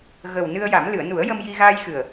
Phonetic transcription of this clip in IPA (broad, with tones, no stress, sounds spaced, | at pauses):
ɣ ə˨˩ w n ɨ˧ ə̯ j a˨˩˦ m l ɨ˨˩˨ ə̯ n u˨˩˦ ə̯ j ə˧ m j i˧ ɣ aː˧ j x ɨ˨˩ ə̯